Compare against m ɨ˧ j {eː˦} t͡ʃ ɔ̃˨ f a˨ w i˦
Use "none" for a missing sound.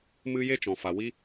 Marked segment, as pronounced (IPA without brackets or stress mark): e˦